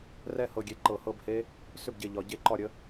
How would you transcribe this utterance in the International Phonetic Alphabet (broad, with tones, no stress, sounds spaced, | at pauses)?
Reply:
r ɛ˥˩ h ɤ˧˩ ɡʲ e˧˩ ǃ ɤ˧˩˧ h ɤ˥˩ b h e˦˥ | s ʏ˥˩ b ɟ e˧˩ ʎ ɒ˩˧ ɟ e˥˩ ǃ ɒ˥˩ ɾʲ ə˦˥